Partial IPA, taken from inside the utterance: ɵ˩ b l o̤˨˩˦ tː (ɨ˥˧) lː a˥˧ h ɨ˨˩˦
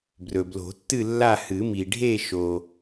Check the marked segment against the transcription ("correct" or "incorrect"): correct